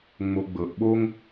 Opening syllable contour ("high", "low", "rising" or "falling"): low